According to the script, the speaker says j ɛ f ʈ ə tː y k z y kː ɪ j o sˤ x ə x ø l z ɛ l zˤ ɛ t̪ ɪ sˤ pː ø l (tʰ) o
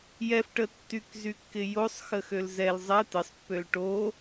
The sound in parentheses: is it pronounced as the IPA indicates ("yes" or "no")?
no